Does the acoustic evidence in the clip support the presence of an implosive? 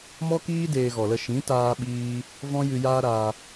yes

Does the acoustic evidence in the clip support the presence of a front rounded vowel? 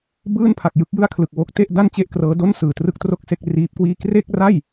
no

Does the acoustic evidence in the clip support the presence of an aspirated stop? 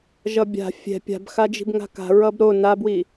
no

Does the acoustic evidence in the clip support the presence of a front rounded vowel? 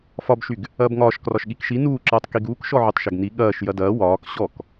yes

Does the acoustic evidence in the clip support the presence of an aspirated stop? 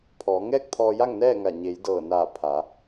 yes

